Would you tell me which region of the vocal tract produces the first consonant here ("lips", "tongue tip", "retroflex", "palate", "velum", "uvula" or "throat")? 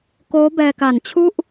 velum